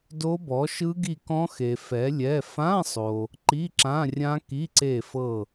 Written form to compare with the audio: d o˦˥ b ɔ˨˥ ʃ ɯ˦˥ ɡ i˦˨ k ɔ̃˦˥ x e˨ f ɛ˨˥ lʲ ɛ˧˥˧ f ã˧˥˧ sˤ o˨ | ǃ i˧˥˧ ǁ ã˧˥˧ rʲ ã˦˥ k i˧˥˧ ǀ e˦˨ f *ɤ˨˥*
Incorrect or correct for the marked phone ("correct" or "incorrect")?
incorrect